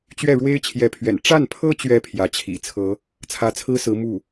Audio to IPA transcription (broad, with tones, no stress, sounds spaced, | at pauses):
t͡ɕ ɥ ɛ˥˩ ɻ w e˥ ɪ̯ t͡ɕʰ j ɛ˧˥ pʰ ɥ ɛ̰˨˩ n ʈ͡ʂ a˥˩ n pʰ ɤ˥ t͡ɕ ɥ ɛ˧˥ pʰ j ä˧˥ t͡ɕʰ ḭ˨˩ t͡sʰ ɤ˧˥ | t͡sʰ ä˧˥ t͡sʰ ɹ̩˥ s ɹ̩˧˥ m u˥˩